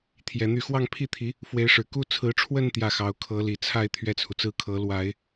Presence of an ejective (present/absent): absent